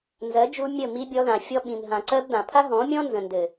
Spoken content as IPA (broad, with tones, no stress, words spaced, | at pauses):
nzɜ˨˦d͡ʒu˧ mʲə˦˨ mi˧bʲɔ˧ðã˨ fʲɔ˧ ɓĩ˨mɦã˨ǀɜ˧b dã˨pʰa˦ɦɔ̃˨˦mʲɔ̃˦ nzə̃˨ndɘ˨